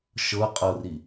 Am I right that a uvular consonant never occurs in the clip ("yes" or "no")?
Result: no